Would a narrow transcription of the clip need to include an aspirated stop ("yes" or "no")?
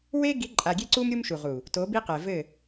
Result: no